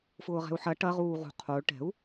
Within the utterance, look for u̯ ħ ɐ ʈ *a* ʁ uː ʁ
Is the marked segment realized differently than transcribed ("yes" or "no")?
yes